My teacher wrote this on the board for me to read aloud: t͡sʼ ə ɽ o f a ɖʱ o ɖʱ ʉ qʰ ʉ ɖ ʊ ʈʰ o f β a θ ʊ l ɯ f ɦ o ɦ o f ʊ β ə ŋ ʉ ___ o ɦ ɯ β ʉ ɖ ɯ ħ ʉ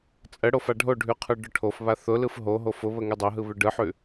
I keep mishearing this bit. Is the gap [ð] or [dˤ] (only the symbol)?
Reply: dˤ